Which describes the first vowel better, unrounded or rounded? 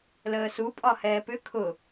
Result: unrounded